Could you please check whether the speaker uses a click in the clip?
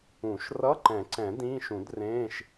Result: yes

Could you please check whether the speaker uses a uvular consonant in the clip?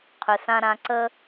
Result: yes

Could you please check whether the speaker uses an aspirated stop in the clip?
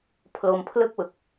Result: yes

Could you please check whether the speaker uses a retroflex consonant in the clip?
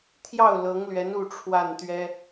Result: yes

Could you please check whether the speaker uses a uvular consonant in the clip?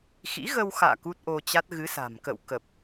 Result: no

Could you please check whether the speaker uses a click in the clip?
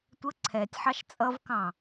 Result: yes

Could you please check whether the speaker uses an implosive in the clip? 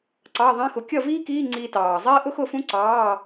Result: no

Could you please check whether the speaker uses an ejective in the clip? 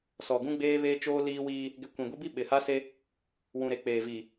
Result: no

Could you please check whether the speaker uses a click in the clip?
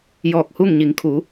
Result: no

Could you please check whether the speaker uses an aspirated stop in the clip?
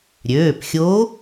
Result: no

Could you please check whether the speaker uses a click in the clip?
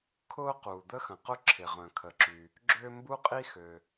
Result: yes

